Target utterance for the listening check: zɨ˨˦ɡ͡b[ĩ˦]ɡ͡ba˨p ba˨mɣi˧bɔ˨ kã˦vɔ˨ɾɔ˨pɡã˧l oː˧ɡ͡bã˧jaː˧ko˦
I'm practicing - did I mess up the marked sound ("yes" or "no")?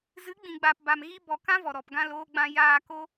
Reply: yes